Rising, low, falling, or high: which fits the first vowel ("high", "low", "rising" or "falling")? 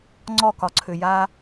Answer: falling